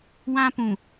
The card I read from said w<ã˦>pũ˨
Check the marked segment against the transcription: correct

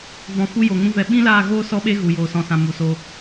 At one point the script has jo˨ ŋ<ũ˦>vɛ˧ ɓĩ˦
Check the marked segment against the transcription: correct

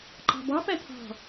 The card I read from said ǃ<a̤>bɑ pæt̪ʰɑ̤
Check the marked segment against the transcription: incorrect: ɑ̤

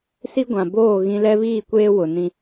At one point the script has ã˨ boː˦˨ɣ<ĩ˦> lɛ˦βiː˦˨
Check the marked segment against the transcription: correct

